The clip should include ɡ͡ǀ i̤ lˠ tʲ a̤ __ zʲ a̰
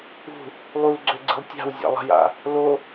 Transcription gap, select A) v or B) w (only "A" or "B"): B